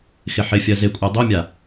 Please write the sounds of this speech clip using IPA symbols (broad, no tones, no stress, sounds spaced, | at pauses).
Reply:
x ɪ ħ ɪ fʲ ɜ z ɪ kʷʼ ɜ dˤ o mʲ a